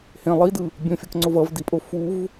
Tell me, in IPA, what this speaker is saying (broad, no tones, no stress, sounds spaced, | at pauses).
h ẽ lˠ i d ɯ | bʲ õ fʲ ʌ k ŋ͡ǀ o v ʌ v d i pʼ o f u v